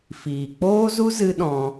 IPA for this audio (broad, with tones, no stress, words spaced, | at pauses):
fiː˨ k͡poː˦zu˦ zɨ˧ ɗɔ̃˧